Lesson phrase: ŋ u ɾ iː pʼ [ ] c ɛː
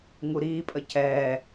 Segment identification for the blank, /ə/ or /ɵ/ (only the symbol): ə